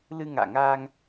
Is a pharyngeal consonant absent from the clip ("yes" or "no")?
yes